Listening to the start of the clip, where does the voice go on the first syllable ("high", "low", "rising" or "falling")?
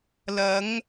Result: rising